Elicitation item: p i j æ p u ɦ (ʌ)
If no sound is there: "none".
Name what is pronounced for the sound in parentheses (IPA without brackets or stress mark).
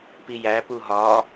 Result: ɒ